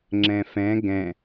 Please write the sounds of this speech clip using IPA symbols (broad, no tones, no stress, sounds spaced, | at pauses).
ŋ͡ǁ ɛ̃ f ɛ̃ ɡ ɛ̃